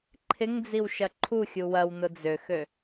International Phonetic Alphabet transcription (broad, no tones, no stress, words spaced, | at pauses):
ǃʰɪŋd͡ziw ʃɐǃʰuxʲu wɐwnʊ d͡zøxø